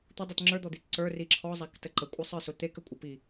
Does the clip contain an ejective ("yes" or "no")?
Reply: yes